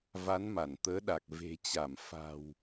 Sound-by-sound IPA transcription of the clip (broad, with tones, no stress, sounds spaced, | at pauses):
v a˨˦ n m a˧˩ n t̪ əː˨˦ ɗ a˨˩ k̚ v e̤˨˩ t͡ɕ a˧˩ m f a̤˨˩ w